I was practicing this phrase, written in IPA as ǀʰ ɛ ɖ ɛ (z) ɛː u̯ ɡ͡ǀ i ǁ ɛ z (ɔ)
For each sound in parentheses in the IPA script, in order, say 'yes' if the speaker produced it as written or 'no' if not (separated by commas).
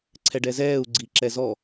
yes, yes